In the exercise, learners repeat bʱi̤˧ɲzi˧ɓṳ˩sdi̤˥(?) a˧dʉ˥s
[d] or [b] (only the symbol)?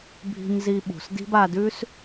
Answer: b